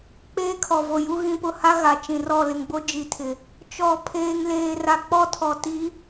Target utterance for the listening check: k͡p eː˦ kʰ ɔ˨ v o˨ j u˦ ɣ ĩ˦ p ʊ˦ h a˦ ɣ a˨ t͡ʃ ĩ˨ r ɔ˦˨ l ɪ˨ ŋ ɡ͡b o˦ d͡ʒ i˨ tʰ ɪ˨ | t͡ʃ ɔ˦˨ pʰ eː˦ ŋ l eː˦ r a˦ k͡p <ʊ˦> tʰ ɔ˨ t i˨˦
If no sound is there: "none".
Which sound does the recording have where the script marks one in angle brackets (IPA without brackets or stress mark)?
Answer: ɔ˦